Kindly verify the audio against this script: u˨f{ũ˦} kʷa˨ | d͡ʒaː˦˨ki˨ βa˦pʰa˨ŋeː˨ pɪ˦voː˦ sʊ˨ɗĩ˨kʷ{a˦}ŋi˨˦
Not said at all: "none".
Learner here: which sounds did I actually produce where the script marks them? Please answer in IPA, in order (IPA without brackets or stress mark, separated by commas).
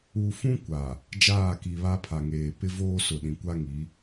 ũ˦, a˦